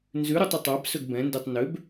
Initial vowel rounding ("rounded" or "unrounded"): rounded